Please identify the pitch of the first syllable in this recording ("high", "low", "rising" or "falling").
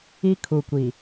high